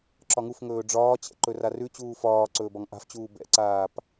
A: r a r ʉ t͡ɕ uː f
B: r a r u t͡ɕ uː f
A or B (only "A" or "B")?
A